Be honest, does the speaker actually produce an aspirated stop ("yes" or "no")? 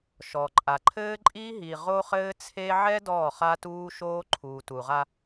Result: yes